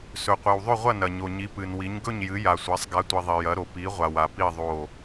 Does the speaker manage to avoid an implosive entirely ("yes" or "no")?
yes